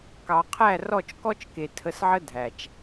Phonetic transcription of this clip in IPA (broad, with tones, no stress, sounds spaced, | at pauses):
k ɑ˨ qʰ æ˦˨ r ɔ˦˨ t͡ʃ k ɔ˦ t͡ʃ k e˨ tʰ ə˧ s ʕ ə˦ dʱ æ˨ t͡ʃ